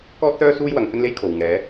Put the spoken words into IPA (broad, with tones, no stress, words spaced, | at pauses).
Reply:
kɔː˥t̚sœː˥ suː˥jwɐ˨˧ŋ hɵ˥nle˥jkʰo˨w ŋɛː˨˧